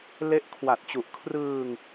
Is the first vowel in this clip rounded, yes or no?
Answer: no